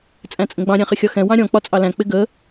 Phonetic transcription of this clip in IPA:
t͡sʼ æ̃ t͡sʼ ə̃ ɡ͡b ɑ̃ ɾʲ æ̃ χ ɪ xʲ ɒ x ɛ̃ w ɑ̃ ɾʲ ɔ̃ k͡p ɒ t͡sʼ ɑ l æ̃ k͡p ɪ ɡ ə

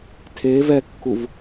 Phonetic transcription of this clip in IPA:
tʰ e v ɛ kː u v

